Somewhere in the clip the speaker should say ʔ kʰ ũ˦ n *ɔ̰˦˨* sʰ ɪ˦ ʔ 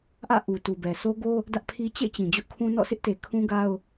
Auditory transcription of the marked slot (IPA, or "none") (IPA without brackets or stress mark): ɔ̰˦˨